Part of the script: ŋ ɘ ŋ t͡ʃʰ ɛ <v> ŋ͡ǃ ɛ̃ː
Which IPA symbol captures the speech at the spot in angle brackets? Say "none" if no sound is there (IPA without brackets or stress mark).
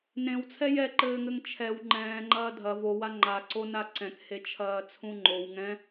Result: w